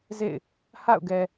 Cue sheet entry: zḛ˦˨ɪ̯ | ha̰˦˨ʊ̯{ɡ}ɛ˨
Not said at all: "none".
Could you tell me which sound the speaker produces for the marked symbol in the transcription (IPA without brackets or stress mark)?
ɡ